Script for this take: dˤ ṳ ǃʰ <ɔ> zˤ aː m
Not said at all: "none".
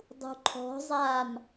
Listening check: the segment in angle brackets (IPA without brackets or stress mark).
ɔ̤